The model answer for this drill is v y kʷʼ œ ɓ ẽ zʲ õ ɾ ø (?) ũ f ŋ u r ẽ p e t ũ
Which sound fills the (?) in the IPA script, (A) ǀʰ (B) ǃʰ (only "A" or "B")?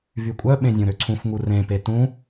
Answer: A